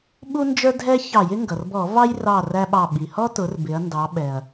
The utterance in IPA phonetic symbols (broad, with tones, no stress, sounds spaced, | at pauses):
ɓ u˦ n d͡ʒ ə˞˦ dʱ ɛ˦ ç ɑ˧˩˧ j ɪ˦ ŋ ɡ ʌ˩ r b ɔ˧˩˧ v ɑ˦ j r ɑ˧˩ r æ˦ ɓ ɑ˧˩ ɓ i˩ h ɔ˦ t ʊ˩˧ r b ɪ˩˧ ɐ̯ n d ɑ˩˧ ɓ ɛ˩ ɐ̯